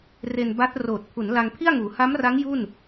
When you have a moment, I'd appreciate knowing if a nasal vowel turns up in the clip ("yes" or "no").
no